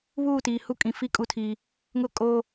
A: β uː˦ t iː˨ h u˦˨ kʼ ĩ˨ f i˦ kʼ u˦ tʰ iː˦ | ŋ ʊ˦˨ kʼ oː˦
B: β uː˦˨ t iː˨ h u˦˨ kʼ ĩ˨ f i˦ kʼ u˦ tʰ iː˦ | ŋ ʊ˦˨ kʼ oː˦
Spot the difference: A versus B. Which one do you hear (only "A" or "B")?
B